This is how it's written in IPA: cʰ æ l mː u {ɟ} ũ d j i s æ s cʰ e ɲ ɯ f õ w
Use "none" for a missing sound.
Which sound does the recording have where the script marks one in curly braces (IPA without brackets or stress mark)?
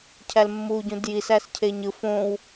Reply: ɟ